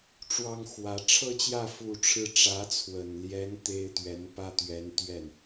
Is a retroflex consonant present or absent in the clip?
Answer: present